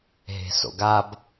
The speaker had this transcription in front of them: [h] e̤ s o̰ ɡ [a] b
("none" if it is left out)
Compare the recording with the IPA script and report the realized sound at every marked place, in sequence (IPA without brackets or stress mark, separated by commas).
ɦ, a